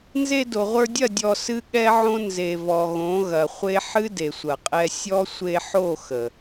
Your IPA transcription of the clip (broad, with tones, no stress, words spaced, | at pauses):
nze˧do˨ʁʷə˞˧dʲɐ˦˨ dʲɔ˧sɨ˦ ɠɛ˦ʕõ˦ nze˨vɔ˨ ɣõ˨˦ɣɐ˨χʷe˦ ħɨ˦ de˨sʷɐ˨qʼɛ˧ sʲɔ˦ sʷe˧ħo˦˨ xə˨